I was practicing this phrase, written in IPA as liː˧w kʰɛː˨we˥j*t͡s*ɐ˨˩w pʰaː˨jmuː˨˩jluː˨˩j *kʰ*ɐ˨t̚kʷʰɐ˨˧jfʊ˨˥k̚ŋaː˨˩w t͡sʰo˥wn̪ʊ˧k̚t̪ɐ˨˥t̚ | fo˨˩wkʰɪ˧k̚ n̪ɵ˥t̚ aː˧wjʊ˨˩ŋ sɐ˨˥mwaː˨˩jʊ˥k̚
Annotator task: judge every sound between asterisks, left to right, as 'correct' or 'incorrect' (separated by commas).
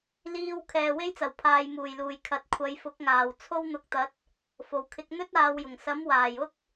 correct, correct